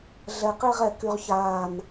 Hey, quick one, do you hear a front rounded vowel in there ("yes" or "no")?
yes